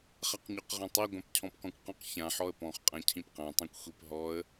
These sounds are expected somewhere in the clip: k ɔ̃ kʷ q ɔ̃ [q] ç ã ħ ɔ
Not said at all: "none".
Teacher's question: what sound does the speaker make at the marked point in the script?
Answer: q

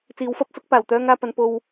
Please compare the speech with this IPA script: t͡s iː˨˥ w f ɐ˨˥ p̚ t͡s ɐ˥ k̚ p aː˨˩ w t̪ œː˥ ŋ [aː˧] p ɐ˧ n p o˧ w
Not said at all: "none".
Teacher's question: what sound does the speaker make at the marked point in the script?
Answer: aː˧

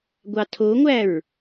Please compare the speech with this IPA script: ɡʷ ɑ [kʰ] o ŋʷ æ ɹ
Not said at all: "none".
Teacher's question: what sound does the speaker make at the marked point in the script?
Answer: tʰ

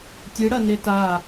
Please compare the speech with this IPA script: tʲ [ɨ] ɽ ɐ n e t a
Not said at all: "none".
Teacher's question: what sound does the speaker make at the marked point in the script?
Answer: ɨ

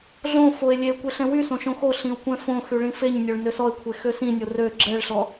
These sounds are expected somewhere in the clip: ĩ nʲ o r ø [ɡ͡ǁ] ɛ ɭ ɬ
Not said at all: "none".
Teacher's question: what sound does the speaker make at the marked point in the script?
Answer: ɡ͡ǁ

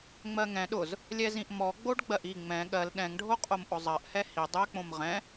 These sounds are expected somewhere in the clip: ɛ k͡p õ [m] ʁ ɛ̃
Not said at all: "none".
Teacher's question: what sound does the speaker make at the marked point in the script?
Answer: m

